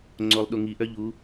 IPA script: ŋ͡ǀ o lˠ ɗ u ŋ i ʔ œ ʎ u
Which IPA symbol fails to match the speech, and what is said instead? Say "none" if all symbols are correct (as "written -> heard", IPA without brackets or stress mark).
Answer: none